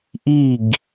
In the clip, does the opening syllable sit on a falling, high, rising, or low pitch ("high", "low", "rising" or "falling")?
falling